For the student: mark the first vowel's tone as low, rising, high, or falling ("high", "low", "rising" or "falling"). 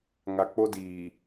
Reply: low